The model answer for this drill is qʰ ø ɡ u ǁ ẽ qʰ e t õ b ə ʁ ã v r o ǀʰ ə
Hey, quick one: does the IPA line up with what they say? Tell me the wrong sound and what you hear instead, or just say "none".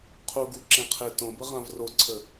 ø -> u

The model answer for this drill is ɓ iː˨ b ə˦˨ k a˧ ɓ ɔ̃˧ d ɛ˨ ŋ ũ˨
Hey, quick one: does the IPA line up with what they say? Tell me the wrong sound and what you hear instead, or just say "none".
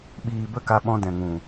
ɛ˨ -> ɛ̃˨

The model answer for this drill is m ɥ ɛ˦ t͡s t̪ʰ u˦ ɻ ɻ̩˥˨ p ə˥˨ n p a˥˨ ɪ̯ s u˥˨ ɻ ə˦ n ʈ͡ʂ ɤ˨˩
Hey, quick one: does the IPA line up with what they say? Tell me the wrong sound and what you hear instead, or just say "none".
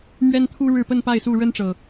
t͡s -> n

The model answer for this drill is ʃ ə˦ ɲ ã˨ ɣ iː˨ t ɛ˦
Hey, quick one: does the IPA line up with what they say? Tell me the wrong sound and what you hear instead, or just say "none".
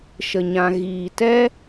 ə˦ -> ə˨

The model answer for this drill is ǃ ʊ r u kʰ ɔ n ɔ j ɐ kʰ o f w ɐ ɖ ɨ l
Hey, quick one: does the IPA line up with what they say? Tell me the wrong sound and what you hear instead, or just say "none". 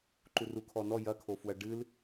ʊ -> u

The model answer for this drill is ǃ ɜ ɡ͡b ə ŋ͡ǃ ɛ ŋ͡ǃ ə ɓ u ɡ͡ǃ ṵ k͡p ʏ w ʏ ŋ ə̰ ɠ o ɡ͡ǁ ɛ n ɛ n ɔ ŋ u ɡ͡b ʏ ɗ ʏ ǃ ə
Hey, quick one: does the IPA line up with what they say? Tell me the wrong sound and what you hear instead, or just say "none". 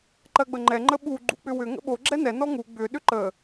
ɠ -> ɓ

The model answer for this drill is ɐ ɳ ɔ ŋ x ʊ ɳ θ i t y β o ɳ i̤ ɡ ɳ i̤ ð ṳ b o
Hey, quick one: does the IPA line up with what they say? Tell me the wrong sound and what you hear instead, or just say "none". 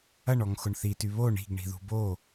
none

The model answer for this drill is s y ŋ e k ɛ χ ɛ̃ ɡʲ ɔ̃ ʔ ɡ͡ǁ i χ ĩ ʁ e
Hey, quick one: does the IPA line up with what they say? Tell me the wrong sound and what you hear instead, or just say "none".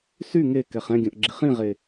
none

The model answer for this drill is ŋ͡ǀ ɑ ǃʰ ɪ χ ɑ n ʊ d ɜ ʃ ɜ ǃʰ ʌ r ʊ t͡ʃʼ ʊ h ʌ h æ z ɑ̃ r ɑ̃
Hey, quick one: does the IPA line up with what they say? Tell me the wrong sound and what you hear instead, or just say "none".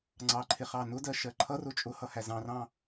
none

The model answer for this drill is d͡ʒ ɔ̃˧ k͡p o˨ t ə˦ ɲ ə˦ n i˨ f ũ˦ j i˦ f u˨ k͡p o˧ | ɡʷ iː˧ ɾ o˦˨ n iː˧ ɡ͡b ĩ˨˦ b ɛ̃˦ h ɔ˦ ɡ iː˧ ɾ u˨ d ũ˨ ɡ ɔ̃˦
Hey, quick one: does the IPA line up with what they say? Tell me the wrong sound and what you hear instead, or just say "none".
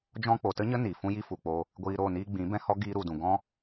none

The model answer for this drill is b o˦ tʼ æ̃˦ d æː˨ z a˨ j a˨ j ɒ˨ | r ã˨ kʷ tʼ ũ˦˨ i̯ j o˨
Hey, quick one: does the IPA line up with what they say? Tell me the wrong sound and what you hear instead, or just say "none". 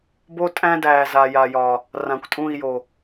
none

